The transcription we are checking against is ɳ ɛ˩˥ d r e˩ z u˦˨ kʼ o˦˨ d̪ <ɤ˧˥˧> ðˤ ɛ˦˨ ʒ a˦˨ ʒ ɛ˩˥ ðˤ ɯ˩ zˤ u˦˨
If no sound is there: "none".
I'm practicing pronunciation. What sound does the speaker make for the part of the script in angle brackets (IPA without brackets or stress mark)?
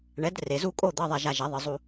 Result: ɤ˧˥˧